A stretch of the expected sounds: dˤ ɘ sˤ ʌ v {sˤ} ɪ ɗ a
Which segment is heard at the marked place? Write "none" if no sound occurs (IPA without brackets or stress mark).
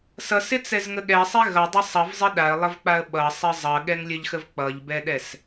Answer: zˤ